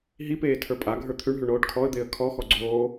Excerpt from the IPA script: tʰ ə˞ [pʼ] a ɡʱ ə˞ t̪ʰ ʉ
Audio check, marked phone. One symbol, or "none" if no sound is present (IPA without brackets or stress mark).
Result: pʼ